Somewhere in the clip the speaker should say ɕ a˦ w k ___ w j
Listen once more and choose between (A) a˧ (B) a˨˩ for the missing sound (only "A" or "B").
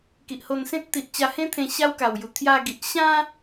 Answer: B